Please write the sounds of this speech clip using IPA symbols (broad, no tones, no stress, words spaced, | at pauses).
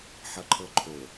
ħʌǃʰɤǃʰo